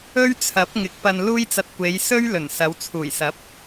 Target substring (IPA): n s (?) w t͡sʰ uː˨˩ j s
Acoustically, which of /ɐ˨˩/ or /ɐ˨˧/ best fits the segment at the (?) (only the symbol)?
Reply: ɐ˨˧